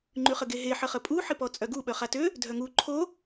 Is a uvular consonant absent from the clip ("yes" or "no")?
no